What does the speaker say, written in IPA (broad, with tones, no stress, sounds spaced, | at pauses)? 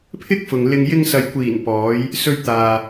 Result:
pʰ ɪ˥ k̚ f ʊ˨ ŋ l ɪ˧ ŋ j ɪ˧ ŋ s ɐ˨ j kʷ iː˨˩ n p ɔː˨˧ j | s ɵ˧ ɥ t̪ aː˨